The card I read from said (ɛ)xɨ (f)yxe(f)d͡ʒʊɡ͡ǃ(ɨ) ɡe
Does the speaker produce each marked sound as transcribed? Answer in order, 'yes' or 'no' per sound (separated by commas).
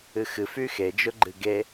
no, yes, no, yes